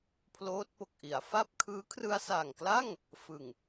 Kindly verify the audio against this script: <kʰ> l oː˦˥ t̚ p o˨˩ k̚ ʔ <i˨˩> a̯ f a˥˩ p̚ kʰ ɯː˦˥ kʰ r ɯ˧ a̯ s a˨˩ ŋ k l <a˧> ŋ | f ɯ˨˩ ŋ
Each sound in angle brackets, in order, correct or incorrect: incorrect, incorrect, incorrect

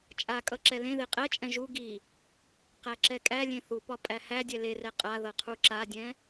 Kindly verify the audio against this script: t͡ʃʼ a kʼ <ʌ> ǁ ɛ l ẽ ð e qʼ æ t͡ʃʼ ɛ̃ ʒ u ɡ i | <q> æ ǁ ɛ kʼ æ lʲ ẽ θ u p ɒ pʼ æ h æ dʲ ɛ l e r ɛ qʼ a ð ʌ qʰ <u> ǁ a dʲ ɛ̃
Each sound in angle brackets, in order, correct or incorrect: correct, correct, correct

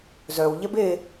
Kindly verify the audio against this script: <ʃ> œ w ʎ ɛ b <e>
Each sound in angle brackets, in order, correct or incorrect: incorrect, correct

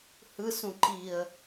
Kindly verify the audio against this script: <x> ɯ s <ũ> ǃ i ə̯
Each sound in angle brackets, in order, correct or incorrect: incorrect, correct

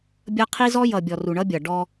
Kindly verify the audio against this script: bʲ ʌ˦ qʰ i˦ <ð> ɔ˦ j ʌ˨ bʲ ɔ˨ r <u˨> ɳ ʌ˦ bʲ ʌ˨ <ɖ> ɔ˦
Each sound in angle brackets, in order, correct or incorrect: incorrect, correct, correct

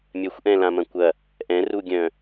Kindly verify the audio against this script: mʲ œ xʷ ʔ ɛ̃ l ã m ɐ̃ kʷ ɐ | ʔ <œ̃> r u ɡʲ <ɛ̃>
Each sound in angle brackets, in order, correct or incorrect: incorrect, incorrect

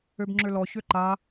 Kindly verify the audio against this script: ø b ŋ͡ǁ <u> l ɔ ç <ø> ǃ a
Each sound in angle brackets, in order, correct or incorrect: incorrect, correct

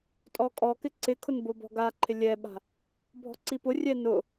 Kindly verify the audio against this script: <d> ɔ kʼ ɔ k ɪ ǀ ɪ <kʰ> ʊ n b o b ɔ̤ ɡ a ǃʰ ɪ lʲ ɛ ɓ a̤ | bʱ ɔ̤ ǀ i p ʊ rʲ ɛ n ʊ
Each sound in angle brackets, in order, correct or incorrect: incorrect, correct

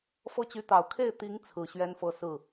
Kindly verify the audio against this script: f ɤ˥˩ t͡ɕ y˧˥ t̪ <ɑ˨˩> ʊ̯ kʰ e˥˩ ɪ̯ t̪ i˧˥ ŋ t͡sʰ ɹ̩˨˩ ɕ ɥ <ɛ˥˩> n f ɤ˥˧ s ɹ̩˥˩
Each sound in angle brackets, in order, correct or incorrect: correct, incorrect

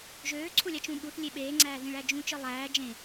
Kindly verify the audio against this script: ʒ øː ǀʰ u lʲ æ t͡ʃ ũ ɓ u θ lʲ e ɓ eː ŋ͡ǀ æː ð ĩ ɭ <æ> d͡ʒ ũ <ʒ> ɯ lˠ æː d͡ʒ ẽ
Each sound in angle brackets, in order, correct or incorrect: correct, incorrect

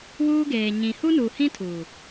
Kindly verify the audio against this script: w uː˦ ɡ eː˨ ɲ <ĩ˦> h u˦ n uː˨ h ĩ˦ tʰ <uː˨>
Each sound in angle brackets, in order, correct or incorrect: incorrect, correct

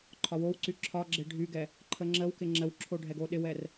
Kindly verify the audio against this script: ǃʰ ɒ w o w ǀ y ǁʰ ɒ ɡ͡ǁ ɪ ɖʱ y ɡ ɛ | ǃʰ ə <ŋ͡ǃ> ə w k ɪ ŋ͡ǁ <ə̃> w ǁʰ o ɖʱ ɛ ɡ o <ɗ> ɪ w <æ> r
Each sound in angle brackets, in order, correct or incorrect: incorrect, incorrect, correct, incorrect

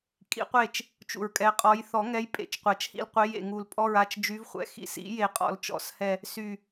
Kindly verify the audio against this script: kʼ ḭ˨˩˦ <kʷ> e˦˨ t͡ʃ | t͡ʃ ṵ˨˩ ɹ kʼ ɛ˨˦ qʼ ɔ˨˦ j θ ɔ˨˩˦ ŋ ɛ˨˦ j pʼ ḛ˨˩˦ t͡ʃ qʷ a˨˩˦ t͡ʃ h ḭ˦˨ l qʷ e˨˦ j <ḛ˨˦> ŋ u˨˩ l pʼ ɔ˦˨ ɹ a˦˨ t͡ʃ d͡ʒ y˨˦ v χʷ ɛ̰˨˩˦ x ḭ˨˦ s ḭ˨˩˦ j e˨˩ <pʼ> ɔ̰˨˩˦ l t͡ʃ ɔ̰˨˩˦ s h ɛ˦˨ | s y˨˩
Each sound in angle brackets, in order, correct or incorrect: incorrect, incorrect, incorrect

